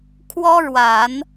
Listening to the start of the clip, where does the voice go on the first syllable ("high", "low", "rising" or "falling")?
high